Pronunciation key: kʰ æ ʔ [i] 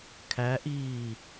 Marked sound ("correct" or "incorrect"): incorrect